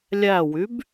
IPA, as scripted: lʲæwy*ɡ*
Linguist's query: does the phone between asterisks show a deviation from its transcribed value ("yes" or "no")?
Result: yes